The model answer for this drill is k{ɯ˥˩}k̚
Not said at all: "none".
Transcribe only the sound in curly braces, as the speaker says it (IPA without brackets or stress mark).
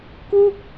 u˥˩